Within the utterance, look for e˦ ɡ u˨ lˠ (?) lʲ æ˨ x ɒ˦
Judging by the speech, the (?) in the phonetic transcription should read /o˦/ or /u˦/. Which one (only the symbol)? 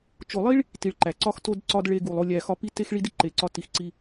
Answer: o˦